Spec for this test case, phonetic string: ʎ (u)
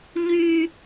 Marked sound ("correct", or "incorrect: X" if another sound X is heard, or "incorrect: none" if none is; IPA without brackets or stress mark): incorrect: y